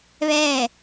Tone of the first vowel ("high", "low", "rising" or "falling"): falling